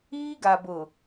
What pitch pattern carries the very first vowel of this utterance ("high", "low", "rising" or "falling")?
high